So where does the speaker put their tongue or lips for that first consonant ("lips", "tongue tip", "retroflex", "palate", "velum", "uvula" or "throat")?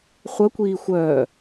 uvula